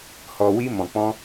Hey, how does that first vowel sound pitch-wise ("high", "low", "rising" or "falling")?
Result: low